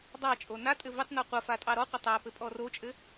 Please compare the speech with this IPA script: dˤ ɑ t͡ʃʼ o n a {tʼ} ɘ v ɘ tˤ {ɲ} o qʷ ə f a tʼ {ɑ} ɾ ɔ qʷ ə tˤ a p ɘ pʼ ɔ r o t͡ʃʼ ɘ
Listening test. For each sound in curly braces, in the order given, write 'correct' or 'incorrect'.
correct, incorrect, correct

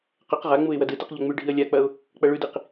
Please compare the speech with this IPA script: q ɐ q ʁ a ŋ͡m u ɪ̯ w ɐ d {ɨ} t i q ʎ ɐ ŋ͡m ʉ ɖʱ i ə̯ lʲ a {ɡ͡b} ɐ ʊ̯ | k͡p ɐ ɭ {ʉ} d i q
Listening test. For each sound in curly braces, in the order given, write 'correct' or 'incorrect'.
correct, incorrect, correct

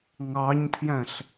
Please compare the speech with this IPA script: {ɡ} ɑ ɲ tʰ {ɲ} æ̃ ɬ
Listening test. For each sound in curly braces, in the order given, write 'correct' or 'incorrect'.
incorrect, incorrect

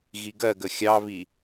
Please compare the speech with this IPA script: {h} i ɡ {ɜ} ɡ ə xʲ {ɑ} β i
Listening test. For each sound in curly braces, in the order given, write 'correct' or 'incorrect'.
incorrect, correct, correct

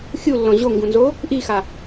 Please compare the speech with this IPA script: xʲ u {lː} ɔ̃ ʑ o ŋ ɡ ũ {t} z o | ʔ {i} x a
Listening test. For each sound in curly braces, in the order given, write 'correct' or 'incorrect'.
correct, incorrect, correct

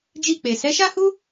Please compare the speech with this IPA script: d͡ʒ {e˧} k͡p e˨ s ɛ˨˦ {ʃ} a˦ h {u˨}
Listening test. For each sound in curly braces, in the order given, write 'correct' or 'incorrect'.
incorrect, correct, incorrect

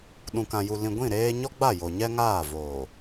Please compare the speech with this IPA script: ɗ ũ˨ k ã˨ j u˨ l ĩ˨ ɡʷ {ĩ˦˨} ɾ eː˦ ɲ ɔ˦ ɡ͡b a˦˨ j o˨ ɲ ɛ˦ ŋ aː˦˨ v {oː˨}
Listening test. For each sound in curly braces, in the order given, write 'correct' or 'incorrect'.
correct, correct

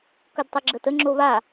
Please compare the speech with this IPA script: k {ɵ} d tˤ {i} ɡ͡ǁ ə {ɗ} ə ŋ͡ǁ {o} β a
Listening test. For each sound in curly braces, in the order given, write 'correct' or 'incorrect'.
correct, incorrect, incorrect, correct

